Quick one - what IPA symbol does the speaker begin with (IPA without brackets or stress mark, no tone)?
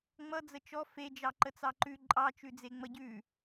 ŋ͡m